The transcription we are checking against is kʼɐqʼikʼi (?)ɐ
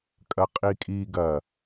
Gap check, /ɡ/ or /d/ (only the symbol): ɡ